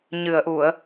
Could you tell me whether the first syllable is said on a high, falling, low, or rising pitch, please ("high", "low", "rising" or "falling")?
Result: low